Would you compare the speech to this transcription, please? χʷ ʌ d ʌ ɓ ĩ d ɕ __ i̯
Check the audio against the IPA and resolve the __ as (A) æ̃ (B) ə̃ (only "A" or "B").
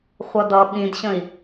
B